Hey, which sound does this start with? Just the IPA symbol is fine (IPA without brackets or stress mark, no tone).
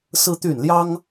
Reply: s